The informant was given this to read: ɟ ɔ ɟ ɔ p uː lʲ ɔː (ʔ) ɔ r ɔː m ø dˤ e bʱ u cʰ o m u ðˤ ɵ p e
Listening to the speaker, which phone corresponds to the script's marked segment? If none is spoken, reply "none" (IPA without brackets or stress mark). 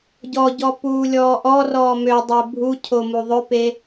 ʔ